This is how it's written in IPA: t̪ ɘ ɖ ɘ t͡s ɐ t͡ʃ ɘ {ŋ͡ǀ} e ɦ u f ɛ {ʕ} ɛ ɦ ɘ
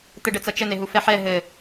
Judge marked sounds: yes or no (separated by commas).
no, no